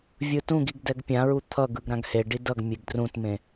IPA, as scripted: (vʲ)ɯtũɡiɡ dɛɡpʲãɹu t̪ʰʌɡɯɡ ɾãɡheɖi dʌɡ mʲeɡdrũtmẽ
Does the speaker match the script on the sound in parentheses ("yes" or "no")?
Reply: yes